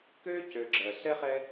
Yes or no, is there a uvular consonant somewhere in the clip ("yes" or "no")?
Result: yes